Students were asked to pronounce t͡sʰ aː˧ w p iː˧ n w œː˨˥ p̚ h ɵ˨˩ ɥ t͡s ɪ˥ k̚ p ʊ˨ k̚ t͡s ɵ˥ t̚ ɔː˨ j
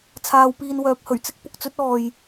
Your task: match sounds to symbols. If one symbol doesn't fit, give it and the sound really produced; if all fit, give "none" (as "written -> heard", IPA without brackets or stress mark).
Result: none